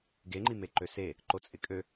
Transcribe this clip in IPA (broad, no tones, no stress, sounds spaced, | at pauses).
ɡ e ŋ͡ǃ i m e ǃ ø s e | ǃ o t͡sʼ ɪ kʼ ø